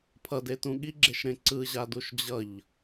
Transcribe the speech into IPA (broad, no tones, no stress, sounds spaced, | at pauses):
pʰ ʌ d e t ũ ɠ i ɡ͡ǁ e ʃ ɾ ẽ ǀ ɯ ʑ a d u ʃ d͡ʑ ʌ ʎ